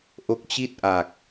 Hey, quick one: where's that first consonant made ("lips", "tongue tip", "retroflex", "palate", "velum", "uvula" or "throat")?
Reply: throat